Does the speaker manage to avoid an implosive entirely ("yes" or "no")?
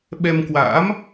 no